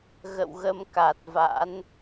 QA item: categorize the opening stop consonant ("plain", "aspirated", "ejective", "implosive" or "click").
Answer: plain